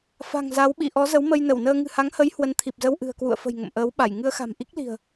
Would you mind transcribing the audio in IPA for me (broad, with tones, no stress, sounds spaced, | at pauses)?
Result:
f a̤˨˩ ŋ z a˨˦ w ɓ ḭ˧˨ ʔ ɔ˨˦ z ə˨˦ w m ə˧ j n ə˧˩ w n əː˧ ŋ ɨ̤˨˩ h a˨˦ ŋ h ə˨˦ j h w ə˨˦ n t̪ʰ i˨˩ p̚ z ə˧ w ʔ ɨ̤˨˩ ə̯ k w ṵ˧˨ ə̯ f ə̤˨˩ j ŋ ə̰˧˨ m ʔ əː˨˦ w ɓ a˧˩ j ŋ ɨ˧ ə̯ x a̤˨˩ m ʔ i˦˥ k̚ l i̤˨˩ ə̯